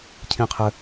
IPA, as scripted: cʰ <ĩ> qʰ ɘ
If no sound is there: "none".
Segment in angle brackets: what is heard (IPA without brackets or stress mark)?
ĩ